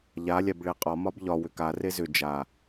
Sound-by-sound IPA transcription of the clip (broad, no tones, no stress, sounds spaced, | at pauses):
ʎ a lʲ a b ɭ e qʼ ɒ m ɒ b ʎ ɒ w ʏ k a r e z ʏ d͡ʒ a